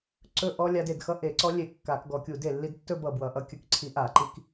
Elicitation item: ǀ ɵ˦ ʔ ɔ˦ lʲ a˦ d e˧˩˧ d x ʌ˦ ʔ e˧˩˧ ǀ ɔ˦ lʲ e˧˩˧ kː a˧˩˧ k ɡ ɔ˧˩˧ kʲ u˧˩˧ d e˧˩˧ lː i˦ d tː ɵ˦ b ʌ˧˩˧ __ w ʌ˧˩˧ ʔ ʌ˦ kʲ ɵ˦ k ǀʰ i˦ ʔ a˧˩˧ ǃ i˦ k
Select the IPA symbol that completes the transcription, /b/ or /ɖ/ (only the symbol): b